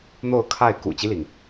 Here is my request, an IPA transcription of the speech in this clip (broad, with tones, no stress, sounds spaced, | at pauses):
n̪ o˥˧ ʊ̯ kʰ a˥˩ ɪ̯ k ṵ˨˩ t͡ɕ i˦ l i˩ ŋ